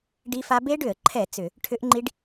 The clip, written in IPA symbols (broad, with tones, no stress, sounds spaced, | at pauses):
ɖ i˦˥ f a˦˥ b e˦˥ ɖ ʏ˧˩˧ ə̯ ǃʰ ɛ˧˩˧ t͡s ʏ˧˩˧ | ʈʰ ʏ˦˥ ʔ ŋ͡ǃ i˦˥ ɖ